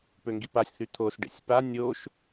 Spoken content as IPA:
p ø ŋ ɡ i p a sʲ θ y t̪ʰ o s ɖ ḛ sʲ p a nʲ o ʃ

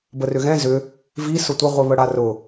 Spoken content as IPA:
b ə r ʏ ɣ ɛ̃ z ʏ | v i s ʊ tʷ ɪ ʁʷ i β ə ɽ a r ʊ

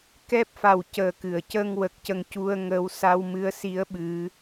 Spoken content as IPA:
k ɛ˦˥ p̚ f a˨˩ w c əː˨˩ k ɨ˨˩˨ ə̯ c ə˧ ŋ w ə˨˩ k̚ c ə˧ ŋ c u˧ ə̯ ŋ əː˧˥ w s a˧ w m ɨ˧˥ ə̯ s i˧˥ ə̯ ɓ ɨ˧˥

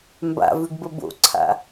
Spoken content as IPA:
m b a̰ v ʉ ɡ b ə b o̰ ǀʰ a̰

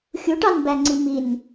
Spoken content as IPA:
xʲ u ʈ ɑ n b æ ŋ͡ǀ i m i n

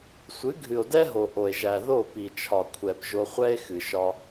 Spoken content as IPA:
sʷ ɨ˨˦ ɡʱ ɨ˨ o̯ d ɛ˦ ɦ o˨ ʔ o˨ e̯ ʒ æ˨ ð o˦˨ p i˨ t͡ʃʰ ɒ˨ kʷʰ ɛ˨ p ʒ o˧ χʷ ɛ˦ e̯ x ɨ˨ ʃ ɒ˧

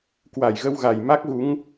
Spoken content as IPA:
k w a˧˩ j ɣ ə˧ w ɣ a˨˩ j m a˦˥ k̚ ɣ u˨˦ ŋ

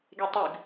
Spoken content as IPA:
ɡ e tˤ y ɡ

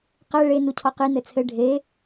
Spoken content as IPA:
q ɛ ɭ e n u cʰ ɔ q i n ɘ t͡sʰ ɘ ɖʱ e

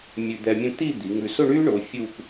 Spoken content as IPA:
mʲ ʉ˧ d̪ ɛ˧ mʲ ə̃˥˧ t̪ i˥˧ d̪ i˩˧ ŋ ʉ˧ s ʊ˥˧ ɳ yː˥ ɳ ʊː˩˧ fʲ uː˥˧ k

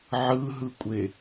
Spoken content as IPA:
ʕ ɯ ɦ ɯ kʷʼ e

